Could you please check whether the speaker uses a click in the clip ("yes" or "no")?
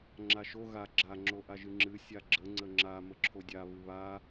yes